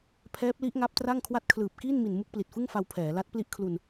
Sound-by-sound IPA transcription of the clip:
pʰɛː˦˥p̚li˦˥ʔŋa˦˥p̚ tra˥˩ŋkʰwa˥˩t̚ kʰlɯː˨˩p̚kiː˥˩nmi˨˩n mu˥˩k̚pli˨˩t̚fɯ˥˩ŋfa˧w pʰɛː˩˦la˦˥t̚ pli˥˩ʔ kʰlu˧n

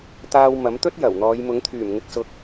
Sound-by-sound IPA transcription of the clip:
t̪aː˧w mɐ˨˥mt̪ɵ˥t̚ jɐ˨˩wn̪ɔː˨˧j mʊ˨˥ŋt̪ʰyː˨˩m ŋɪ˨˥k̚sʊ˨k̚

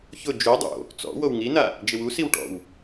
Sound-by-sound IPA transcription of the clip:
çʊ d͡ʒu dˤo̰ | t͡sɔ̰ wowŋina | d͡ʒɪwusiw ʈɔ̰w

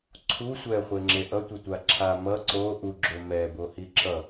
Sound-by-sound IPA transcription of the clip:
ǀʰu sʷɛχʷeŋ͡ǁe ʔʌtʷetʷa ǁʰa mʌ ǀo ʔuɡ͡ǁo mɛbohi ǁʌ

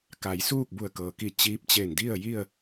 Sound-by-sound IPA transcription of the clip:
ka˩˧jsuː˥˨k̚ bu˧˩ə̯kɤː˩ki˧˩ t͡ɕiː˧˥p̚t͡ɕe˧˩n di˥˨ə̯ji˥˨ə̯

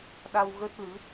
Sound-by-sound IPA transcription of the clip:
ɗa˧wɣə˦˥t̚ lɨ˨˦

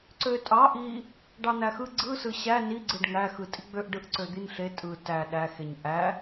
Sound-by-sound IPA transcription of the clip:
ǀøtʼɑ ʔi | ɖɑn̪æxɯ ɡ͡ǀɯsɯ ɕæ niɡ͡ǀɯɖ ŋæxɯ tʼiɡ͡bøʔ ɖɯʔǀød̪inɬe tʼɯ tæ ɗæxeɲ ʔæ

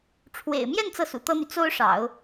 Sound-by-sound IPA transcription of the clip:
ʈ͡ʂʰwḛ˨˩ɪ̯mjɛ˥˧n t͡sɤ˥˩sṵ˨˩t̪ɤ˥n̪y˨ t͡so˥ʊ̯ʂɑ̰˨˩˦ʊ̯

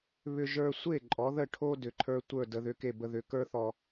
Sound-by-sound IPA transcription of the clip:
βʏ˧ʒə˞˧sʷe˥˩ ǃʼɔ˩˥ðə˥˩ʈʰo˥ dʏ˩ǃʰə˞˧tʷə˞˥˩ də˧ðʏ˧ke˥˩ bə˧ðʏ˩˥kə˞˥θɔ˧

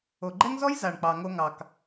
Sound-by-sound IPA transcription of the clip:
o˨ɡ͡ǃɛ˦ŋzɔ˦j za˨ɳk͡pɑ˨ŋo˧ŋɑ˨k

